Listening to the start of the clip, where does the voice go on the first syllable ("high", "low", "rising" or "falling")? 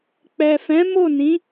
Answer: low